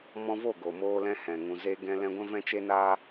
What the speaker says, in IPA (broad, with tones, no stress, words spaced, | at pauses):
mɔ̃˧vo˦˨ ɡo˨moː˦lɛ̃˦hɛ̃˨ ŋũ˨ze˦ ɡɛ̃˦ lɛ̃˧ɡʷɛ̃˦ vɛ̃˦t͡ʃe˦naː˦